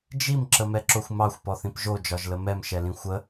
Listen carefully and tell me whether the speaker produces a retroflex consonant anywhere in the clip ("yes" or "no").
no